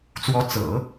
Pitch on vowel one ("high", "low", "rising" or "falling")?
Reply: rising